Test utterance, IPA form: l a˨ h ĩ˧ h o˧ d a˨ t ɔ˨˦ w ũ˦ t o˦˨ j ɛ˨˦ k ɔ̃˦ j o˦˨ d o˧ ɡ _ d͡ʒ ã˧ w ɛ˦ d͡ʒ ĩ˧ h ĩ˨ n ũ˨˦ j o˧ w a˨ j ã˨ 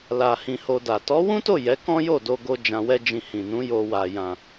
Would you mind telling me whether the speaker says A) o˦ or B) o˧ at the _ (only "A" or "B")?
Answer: B